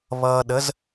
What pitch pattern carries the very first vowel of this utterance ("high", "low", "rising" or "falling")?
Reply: low